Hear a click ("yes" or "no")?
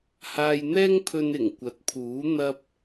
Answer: no